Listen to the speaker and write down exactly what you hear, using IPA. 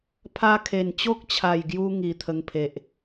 pʰa˧kʰe˨˩nt͡ɕo˦k̚t͡ɕʰa˨˩j ɡju˦ ŋi˨˩t̪ʰə˧ŋ pʰe˨ʔ

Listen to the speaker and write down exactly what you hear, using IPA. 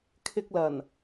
kʰɪ˧k̚lɐ˨˩n

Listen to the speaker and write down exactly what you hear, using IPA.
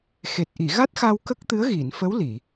xe˨˩t̚ʔi˨˩˨ ɣa˦˥t̚xa˧w kə˦˥k̚t̪ɨ˧˥ə̯ɣi˨˩˨n fə˧˥wli˨˩˨

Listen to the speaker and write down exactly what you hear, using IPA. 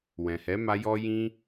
wɛ̃˨hɛ˨˦ma˧ jɔ˦jĩ˦

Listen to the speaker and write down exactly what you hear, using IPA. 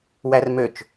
wærmøt͡ʃ

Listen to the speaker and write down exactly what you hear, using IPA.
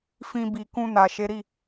fĩ˧bi˨ kũ˧na˨ ʃe˨˦ɾi˦˨

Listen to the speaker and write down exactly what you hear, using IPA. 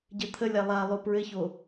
ɟɘt̪ʰəlʲa lˠalˠo pɹɘço

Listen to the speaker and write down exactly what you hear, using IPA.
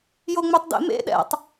joŋ͡møtˤdḛmḛ ɗɛ̰tˤ

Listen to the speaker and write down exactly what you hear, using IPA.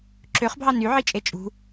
ǁøχbʱɑ nyʕit͡ʃʼe t͡ʃʼṳ

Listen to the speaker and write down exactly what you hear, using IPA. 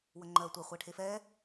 wəŋ͡ǃɜtʷɛ χʷɛʈʰefɛ

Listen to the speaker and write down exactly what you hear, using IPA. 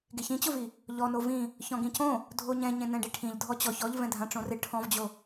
ɡeçĩt͡ɕʊvi | ʎɔ novĩ | çɔ̃ɡĩcõ | dʱoɲɛ̃ ɲẽnɛ̃ɖiʈʰĩʎ dʱɔt͡ɕɔç ɔʎvɛ̃ dʱãʈ͡ʂõrɪ ʈʰɔ̃vd͡ʑo

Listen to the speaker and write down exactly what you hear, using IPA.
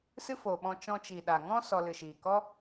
sɨ˦foː˨ɓɔ̃˧ t͡ʃɔ̃˧t͡ʃi˨ɗa˨ŋɔ̃˦ sɔ˧ lɨ˨ʃiː˨ kɔ˦

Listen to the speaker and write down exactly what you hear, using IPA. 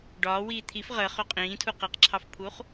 ɖɒːwiː t̪ʰif ʁəχø qʼĩːtʰu qeqǁʰɑfpʰuːχ

